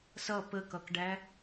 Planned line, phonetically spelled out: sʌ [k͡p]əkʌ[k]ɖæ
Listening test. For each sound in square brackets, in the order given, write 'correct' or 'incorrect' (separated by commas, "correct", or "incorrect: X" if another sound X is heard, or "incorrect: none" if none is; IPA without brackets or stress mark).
incorrect: p, correct